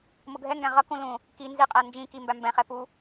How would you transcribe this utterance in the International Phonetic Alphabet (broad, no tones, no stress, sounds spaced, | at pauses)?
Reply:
m ʊ ɡʱ ɛ ŋ ɡ æ̃ ʁ ʌ k ũ l ũ | k i n z i qʼ æ n d͡ʒ ĩ k i m b æ m b ɛ̃ χ ɛ p u